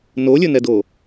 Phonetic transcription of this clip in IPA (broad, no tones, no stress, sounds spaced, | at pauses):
n o lʲ ɵ n ɛ d o